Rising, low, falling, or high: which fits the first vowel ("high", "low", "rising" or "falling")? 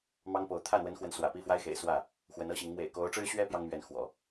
high